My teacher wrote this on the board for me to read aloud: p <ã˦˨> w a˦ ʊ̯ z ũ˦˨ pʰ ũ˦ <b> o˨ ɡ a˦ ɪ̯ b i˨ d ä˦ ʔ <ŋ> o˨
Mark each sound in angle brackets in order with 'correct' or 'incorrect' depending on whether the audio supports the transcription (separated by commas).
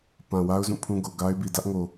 incorrect, incorrect, correct